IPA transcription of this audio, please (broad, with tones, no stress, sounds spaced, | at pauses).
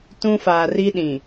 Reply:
t ũ˦ f aː˨ r i˦ ɗ ĩ˨